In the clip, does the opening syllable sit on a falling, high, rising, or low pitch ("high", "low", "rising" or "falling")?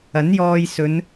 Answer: rising